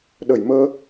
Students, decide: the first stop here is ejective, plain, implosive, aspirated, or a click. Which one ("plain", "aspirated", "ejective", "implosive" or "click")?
implosive